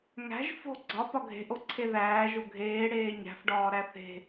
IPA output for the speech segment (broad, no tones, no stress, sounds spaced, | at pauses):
ŋ æ̤ ʒ f o̤ ɡ͡ǀ ɒ p ɒ ɡʱ e̤ ʔ o ǀʰ e ð æː ʒ o ɡʱ eː ɽ eː ɲ æ̤ f ɖ ɒː ɾ æ θ e̤